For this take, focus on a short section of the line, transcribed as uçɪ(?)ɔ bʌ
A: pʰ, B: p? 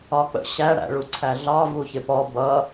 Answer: B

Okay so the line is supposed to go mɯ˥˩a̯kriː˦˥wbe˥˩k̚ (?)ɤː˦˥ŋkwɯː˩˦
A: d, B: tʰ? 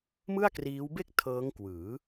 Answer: B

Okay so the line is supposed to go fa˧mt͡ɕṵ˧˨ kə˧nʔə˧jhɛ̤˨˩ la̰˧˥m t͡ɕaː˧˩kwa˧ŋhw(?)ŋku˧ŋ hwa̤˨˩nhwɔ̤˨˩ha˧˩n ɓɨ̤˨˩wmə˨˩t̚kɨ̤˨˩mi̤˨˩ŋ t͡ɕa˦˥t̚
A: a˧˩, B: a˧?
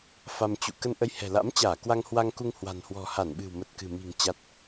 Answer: B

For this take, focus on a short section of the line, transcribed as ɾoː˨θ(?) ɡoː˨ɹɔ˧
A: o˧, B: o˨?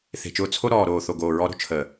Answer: B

